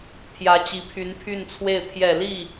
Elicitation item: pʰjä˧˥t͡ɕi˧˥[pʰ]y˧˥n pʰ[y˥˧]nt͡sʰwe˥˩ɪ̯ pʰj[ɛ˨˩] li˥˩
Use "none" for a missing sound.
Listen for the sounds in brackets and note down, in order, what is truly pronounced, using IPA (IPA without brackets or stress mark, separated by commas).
pʰ, y˥˧, ɛ˨˩